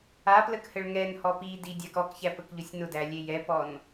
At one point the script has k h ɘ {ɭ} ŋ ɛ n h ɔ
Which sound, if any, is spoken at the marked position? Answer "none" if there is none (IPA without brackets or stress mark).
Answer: ɭ